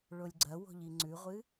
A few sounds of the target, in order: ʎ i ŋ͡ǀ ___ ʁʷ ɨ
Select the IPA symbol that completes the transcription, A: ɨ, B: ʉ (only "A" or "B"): B